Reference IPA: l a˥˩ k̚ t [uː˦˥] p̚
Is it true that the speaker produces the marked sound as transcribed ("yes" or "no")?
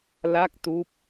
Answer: yes